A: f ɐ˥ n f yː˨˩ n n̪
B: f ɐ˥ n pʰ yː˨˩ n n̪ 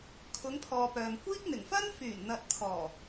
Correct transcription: A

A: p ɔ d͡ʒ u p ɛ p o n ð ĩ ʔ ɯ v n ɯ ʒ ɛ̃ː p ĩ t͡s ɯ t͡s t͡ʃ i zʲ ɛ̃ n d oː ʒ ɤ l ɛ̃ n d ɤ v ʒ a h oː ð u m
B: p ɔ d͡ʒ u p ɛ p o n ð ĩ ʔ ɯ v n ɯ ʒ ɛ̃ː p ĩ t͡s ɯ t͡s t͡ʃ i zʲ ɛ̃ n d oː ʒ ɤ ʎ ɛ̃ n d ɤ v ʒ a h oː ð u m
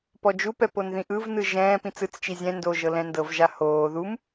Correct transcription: A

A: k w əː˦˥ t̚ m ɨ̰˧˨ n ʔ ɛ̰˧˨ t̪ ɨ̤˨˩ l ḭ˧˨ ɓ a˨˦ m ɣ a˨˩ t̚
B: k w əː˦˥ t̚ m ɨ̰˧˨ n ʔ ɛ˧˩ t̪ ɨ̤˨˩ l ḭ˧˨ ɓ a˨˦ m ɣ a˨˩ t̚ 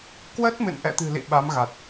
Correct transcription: A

